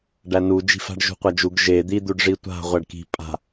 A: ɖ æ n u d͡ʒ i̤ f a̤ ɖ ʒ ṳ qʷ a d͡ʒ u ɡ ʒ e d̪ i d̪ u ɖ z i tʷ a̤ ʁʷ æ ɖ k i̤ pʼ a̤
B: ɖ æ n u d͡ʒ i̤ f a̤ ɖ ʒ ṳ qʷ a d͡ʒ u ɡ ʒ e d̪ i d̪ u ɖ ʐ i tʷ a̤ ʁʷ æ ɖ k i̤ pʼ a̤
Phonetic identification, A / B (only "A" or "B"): B